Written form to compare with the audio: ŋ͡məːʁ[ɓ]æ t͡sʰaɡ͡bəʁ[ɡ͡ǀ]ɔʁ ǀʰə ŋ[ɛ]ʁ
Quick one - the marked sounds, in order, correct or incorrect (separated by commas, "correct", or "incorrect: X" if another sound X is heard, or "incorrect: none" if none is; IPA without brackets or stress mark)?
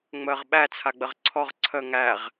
correct, incorrect: ǀʰ, incorrect: æ